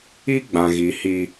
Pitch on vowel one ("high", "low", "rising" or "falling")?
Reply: high